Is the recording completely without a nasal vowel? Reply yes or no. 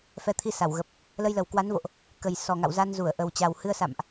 yes